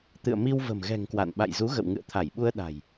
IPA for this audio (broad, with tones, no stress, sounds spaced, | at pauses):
t̪ ɨ̰˧˨ ə̯ m i˧ w v ə̤˨˩ m ɣ ɛ̤˨˩ ŋ k w a̰˧˨ n ɓ a̰˧˨ j z u˨˦ ɣ ə̰˧˨ w ŋ ɨ̰˧˨ ə̯ t̪ʰ a˧˩ j ɓ u˧ ə̯ ɗ a̤˨˩ j